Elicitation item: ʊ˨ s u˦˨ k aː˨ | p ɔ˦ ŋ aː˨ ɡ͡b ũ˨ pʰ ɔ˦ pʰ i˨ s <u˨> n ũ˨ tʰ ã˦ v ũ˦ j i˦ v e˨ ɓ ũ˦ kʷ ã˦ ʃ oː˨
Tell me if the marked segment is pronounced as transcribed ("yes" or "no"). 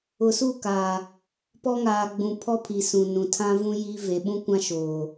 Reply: no